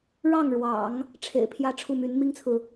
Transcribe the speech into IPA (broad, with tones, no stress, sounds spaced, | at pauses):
ɻ ɑ˥˩ ŋ ɻ w ɑ̰˨˩˦ ŋ | ʈ͡ʂʰ ḛ˨˩ ɪ̯ pʰ j ä˥ ʈ͡ʂʰ u˥˩ m y˧˥ n m i˥ ŋ t͡sʰ ɹ̩˨